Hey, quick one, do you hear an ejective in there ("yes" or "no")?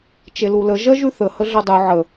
no